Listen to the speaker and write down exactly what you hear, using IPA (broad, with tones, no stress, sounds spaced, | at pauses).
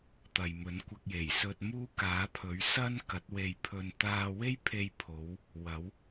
t̪ ɐ˨ j m ɵ˨˥ n kʷ ɐ˧ k̚ j e˨˩ j s ɵ˧ t̚ m uː˥ k aː˨˥ pʰ ɵ˨˥ ɥ s ɐ˥ n k ɐ˨˥ t̚ w e˧ j pʰ ɵ˧ n t̪ aː˧ w e˥ j pʰ e˧ j pʰ o˨˧ w | w ɐ˨˥ w